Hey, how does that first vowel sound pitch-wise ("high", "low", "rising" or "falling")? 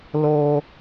high